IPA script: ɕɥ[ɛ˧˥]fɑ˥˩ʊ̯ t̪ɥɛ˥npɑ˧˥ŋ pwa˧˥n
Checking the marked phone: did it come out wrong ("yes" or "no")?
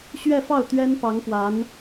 yes